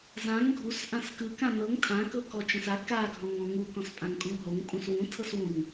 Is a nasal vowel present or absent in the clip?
present